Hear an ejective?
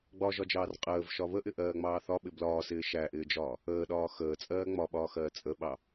yes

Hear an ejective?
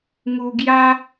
no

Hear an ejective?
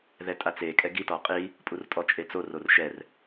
yes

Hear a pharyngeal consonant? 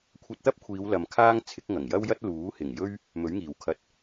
no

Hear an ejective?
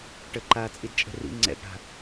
yes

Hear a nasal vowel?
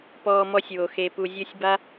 no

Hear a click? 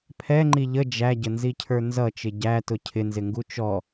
yes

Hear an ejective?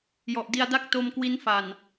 no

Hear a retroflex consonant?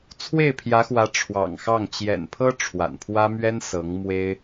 yes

